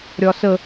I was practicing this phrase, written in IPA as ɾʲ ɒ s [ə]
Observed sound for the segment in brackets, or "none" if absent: ə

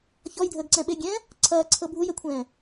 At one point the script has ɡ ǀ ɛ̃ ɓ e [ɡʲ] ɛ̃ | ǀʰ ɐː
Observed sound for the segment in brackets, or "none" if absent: ɡʲ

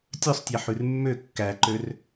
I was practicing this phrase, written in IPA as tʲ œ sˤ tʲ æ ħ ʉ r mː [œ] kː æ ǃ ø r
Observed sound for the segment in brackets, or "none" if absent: ø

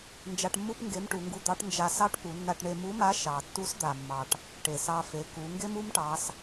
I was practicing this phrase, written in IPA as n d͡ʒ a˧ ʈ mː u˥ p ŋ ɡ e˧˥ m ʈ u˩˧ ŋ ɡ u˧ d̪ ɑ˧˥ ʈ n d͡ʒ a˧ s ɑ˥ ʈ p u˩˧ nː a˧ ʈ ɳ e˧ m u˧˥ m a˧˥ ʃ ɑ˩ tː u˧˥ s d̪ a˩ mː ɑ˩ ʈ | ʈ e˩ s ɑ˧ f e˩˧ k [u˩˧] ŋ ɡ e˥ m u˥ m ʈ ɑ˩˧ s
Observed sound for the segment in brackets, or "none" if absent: u˩˧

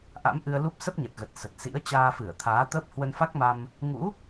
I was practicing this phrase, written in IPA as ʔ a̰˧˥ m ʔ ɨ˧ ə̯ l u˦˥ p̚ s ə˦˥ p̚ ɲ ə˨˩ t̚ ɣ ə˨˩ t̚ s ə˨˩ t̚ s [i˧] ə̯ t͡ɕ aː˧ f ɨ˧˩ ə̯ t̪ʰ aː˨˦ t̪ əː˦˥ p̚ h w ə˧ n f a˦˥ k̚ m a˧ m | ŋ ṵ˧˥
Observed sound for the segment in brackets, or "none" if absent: ḭ˧˥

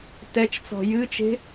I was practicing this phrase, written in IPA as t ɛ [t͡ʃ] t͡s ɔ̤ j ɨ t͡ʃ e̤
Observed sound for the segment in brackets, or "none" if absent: t͡ʃ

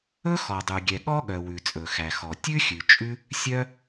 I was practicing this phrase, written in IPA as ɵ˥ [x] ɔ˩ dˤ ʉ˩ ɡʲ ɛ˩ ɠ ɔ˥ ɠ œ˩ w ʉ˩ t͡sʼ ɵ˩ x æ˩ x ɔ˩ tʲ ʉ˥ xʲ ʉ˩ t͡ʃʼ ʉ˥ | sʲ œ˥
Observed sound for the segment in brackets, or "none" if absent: x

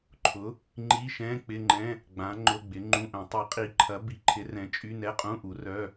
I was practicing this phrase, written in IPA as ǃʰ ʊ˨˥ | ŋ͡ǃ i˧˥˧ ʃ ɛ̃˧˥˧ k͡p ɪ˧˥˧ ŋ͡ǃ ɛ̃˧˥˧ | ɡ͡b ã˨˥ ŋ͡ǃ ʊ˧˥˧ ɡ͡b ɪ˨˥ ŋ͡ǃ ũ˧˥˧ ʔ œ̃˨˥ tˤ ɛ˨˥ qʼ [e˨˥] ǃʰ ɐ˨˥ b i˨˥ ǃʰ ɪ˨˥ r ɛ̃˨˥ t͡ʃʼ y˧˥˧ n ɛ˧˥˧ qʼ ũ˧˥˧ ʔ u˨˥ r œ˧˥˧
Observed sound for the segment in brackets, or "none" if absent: i˨˥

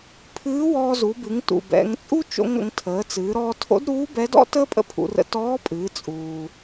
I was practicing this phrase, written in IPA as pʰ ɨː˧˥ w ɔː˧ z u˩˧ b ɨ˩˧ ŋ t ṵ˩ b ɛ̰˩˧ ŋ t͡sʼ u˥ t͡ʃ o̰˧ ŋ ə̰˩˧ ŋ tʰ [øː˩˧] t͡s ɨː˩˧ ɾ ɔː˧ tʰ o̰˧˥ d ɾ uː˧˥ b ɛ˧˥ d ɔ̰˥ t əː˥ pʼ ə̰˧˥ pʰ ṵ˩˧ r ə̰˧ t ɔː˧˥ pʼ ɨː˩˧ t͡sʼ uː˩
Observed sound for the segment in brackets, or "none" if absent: əː˩˧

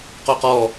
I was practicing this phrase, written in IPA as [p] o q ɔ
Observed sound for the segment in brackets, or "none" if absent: q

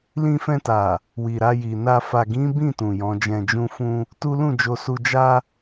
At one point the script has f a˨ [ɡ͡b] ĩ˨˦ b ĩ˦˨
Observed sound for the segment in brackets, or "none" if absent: ɡ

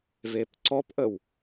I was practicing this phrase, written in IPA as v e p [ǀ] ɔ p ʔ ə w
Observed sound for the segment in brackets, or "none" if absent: ǀ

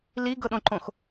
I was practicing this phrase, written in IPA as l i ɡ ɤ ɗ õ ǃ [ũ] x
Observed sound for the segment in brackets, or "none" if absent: õ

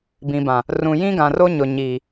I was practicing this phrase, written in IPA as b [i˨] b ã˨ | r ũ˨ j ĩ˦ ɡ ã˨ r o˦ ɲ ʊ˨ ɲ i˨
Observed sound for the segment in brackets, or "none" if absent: ĩ˨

